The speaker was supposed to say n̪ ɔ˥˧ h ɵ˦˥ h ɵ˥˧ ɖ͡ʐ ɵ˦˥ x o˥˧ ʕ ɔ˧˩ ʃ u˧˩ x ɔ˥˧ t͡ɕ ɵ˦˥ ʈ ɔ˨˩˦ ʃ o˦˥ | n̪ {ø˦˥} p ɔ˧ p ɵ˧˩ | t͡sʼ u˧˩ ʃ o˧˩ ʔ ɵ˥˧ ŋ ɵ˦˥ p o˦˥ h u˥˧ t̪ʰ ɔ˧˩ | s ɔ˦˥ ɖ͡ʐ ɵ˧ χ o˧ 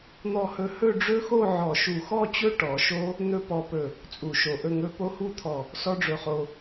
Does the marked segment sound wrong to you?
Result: yes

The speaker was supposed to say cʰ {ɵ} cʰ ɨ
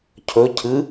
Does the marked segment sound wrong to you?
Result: no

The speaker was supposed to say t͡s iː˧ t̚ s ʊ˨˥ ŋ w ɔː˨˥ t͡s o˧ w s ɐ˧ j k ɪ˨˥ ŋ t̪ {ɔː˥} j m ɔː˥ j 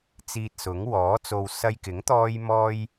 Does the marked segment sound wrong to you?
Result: no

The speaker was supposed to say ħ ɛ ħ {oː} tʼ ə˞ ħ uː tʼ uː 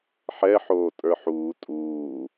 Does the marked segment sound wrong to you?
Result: no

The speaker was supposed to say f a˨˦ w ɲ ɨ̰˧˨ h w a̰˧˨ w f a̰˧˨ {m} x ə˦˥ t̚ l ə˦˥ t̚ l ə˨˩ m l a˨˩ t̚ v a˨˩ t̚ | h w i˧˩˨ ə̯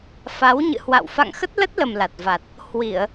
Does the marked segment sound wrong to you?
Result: yes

